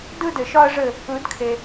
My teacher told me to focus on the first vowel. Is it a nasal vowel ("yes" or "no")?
no